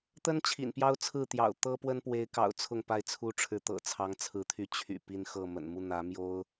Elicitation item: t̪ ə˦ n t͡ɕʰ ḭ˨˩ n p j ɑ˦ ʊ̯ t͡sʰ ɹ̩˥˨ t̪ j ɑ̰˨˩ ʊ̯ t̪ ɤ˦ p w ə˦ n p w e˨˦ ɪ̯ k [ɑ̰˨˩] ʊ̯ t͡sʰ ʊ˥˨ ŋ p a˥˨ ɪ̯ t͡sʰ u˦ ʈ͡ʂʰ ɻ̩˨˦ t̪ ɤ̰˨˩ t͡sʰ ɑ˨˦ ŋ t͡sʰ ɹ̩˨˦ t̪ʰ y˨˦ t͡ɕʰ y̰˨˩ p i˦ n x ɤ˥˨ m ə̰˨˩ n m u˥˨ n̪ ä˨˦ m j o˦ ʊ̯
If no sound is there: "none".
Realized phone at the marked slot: ɑ̰˨˩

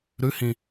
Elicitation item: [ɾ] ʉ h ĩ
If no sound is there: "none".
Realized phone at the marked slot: ɾ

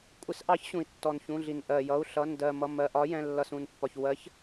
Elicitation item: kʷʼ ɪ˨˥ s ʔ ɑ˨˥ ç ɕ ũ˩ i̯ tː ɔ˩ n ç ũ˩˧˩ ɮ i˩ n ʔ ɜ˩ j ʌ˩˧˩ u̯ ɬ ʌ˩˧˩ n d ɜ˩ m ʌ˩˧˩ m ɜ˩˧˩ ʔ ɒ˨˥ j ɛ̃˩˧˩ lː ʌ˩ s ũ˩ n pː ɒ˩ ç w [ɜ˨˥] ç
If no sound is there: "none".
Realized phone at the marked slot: ɜ˨˥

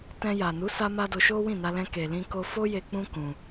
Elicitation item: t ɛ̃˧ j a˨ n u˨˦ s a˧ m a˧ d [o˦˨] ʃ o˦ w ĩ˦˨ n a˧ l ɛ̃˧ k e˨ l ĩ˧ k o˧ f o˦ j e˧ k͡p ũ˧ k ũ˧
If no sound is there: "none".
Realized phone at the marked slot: o˧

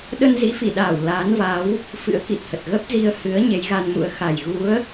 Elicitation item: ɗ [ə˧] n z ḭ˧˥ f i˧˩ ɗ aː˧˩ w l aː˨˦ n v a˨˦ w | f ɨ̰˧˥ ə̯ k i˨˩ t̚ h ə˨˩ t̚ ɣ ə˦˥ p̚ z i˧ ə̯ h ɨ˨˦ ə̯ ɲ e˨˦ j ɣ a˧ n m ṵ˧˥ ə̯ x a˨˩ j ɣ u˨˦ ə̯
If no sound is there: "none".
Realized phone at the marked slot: ə˧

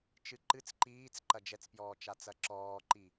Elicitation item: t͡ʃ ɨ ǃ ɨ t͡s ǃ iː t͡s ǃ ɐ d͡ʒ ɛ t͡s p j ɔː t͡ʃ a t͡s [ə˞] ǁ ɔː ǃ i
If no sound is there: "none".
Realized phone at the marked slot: ɐ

